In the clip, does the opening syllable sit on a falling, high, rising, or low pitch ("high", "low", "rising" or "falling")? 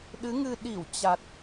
rising